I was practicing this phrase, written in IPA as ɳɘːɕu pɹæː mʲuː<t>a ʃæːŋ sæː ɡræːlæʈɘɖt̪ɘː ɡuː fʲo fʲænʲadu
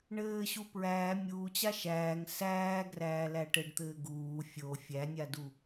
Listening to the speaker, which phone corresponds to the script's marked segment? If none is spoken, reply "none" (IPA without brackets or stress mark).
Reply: t͡ɕ